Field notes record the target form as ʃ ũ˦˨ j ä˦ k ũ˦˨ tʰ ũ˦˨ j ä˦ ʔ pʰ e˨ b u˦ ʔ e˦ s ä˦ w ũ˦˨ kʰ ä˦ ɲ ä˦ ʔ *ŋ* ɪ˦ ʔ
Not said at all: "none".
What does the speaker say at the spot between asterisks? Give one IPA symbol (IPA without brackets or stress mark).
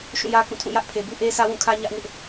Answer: ŋ